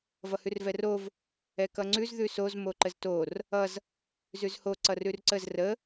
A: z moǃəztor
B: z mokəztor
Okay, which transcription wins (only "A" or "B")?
A